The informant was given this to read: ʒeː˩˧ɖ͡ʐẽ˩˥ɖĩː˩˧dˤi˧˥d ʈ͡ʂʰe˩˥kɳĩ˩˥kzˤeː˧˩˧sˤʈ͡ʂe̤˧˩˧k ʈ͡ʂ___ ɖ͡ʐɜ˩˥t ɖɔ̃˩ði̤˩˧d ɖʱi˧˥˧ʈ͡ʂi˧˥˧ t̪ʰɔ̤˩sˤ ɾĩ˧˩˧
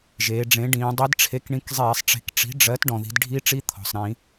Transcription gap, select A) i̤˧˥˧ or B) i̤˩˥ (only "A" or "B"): B